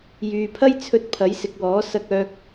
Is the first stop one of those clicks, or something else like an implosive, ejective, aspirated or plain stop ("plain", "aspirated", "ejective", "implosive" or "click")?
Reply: aspirated